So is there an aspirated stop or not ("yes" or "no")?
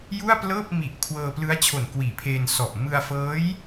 yes